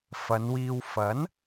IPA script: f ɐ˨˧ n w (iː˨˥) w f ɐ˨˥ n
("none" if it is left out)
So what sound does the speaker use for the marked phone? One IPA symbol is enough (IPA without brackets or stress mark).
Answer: iː˧